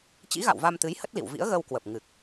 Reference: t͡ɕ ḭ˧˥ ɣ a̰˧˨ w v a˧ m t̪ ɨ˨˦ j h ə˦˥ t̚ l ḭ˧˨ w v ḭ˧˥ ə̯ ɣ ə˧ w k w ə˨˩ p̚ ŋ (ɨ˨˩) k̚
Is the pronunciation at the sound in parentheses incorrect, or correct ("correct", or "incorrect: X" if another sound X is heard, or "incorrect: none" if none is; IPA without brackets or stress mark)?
correct